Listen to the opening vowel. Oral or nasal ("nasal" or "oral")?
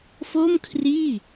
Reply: oral